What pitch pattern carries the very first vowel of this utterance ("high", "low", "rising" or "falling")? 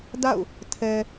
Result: falling